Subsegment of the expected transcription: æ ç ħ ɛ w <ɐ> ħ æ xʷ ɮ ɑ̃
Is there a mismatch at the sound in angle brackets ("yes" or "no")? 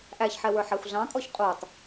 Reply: yes